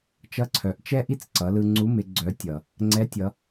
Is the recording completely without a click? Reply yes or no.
no